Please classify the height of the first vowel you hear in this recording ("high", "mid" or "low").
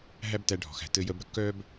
low